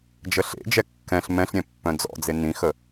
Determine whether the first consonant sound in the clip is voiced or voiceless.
voiced